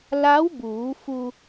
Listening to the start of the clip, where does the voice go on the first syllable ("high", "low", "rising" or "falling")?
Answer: rising